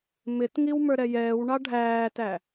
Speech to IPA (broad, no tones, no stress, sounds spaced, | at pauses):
m ɪ t ŋ i w m ə˞ ɾ ɛ j ɛː w ɳ ɑ ɖʱ æː t æ